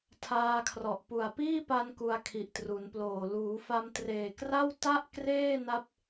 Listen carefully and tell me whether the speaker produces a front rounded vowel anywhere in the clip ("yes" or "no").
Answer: no